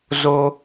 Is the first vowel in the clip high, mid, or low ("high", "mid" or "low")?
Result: mid